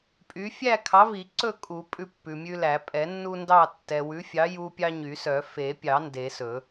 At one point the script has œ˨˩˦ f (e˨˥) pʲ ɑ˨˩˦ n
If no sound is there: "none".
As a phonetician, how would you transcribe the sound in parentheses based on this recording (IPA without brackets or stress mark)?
e˨˩˦